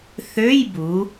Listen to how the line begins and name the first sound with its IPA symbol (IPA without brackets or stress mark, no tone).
θ